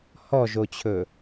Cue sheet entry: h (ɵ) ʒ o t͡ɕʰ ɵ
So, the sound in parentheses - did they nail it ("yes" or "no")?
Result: no